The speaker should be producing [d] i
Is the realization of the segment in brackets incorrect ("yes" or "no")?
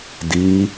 no